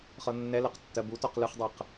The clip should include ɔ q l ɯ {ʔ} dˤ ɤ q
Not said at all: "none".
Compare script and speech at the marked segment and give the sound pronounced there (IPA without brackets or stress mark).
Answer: χ